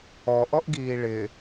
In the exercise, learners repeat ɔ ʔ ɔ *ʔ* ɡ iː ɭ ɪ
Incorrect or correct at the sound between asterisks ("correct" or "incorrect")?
correct